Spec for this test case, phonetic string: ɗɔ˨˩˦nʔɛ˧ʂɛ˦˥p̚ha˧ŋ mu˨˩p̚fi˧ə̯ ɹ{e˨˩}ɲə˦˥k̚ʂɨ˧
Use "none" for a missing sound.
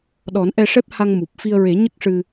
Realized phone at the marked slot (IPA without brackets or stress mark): e˨˩˦